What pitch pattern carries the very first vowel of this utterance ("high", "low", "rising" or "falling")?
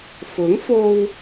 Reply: rising